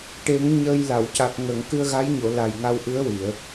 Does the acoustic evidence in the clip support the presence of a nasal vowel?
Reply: no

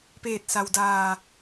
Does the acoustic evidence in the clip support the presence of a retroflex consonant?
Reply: no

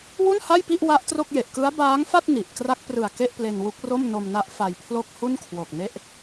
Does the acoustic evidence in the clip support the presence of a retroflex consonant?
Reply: no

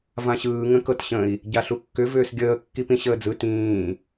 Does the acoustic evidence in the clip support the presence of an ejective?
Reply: no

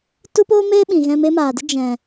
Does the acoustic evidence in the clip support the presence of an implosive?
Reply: yes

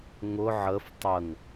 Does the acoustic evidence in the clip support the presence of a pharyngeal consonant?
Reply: yes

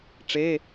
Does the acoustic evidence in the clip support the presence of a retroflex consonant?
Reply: yes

